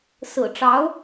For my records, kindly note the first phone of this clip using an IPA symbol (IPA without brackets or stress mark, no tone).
s